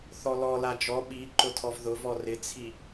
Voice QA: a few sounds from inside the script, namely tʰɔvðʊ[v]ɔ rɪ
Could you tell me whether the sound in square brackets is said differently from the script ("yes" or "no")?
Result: no